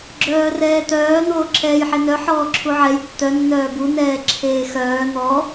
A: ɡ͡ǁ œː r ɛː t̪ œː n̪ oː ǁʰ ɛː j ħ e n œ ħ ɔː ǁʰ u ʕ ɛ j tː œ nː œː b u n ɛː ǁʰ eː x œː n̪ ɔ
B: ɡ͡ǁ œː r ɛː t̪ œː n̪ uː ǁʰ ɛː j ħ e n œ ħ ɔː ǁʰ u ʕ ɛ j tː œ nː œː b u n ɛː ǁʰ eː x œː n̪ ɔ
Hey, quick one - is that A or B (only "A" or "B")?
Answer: A